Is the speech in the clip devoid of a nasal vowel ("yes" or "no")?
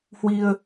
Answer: yes